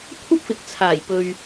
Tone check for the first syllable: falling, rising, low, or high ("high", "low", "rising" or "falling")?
high